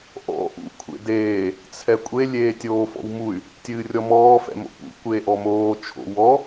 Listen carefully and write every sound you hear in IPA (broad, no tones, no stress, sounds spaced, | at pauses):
ʔ ɔ̰ ʔ ṵ kʷʰ ḛ d eː | t͡sʰ ɛ kʷʼ e lʲ eː tʲ oː f ɔ̰ w m u y̯ | tʲ ɨː rʲ ɔ m ɔː f ɛ̰ m o̰ p ṵ kʷ eː ʔ ɔ m oː t͡ʃʰ o̰ w ɔ